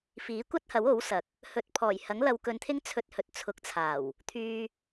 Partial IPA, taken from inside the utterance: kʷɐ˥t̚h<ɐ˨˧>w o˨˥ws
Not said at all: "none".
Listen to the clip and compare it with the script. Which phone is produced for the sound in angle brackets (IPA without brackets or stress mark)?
ɐ˨˥